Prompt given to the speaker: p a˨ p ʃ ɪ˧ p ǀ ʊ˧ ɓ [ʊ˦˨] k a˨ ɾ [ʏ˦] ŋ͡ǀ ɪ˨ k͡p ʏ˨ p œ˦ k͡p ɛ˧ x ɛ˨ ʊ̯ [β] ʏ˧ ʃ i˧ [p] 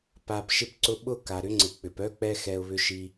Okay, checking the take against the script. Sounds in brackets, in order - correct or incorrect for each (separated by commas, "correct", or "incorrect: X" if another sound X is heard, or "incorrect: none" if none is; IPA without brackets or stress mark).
correct, correct, correct, incorrect: none